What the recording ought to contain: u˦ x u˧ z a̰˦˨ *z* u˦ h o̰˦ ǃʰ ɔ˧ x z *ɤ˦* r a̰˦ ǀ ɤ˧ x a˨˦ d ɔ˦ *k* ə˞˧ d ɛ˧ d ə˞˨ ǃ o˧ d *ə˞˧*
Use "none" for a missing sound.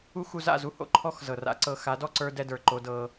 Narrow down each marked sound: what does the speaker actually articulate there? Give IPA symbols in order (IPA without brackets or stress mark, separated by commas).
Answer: z, ɤ˨, ǀ, ɤ˧